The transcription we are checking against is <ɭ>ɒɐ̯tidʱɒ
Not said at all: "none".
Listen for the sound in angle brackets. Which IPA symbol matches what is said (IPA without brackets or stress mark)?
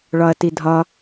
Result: ɭ